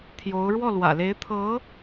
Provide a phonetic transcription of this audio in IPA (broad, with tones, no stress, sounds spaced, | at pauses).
t̪ʰ j o˧˥ ʊ̯ ɻ w ɔ˥˩ l w ä̰˨˩ l e˧˥ ɪ̯ t̪ʰ ɤ˧˥